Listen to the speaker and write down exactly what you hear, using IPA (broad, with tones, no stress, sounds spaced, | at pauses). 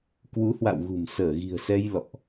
k w u˨˦ h w a̰˧˨ w ɣ ṳ˨˩ m s əː˧˩ ɣ i̤˨˩ ə̯ s ɛ˧ j l ɔ̰˧˨ ʔ